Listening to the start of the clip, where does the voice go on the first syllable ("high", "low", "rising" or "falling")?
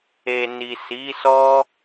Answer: low